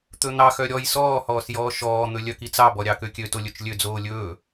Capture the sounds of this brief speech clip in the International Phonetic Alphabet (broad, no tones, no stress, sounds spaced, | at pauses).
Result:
t̪ ɵ n̪ ɑ x œ ɾʲ ɔ j s ɔː h ɔː s j ɔː ʃ ɔː n̪ ɵ lʲ œ k i t͡s ɑ b ɔ ɾʲ ɑ k ø kʲ ø t o lʲ ɵ t͡ʃ lʲ ø d͡z oː lʲ ɵː